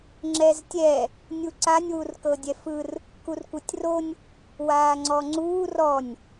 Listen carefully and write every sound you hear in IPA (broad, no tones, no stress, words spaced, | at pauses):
ŋ͡ǁɛztʲɛ | nʲuǀanʲ wurkɤdʲɛfɯr | kurkʷɤtʲronʲ | waːŋ͡ǀɔŋ͡ǀuːr ɔnʲ